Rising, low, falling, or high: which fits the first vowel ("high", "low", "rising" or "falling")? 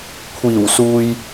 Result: low